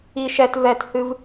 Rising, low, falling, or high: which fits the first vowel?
high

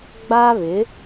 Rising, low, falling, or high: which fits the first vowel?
high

